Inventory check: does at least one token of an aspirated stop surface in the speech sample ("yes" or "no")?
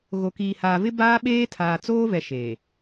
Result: yes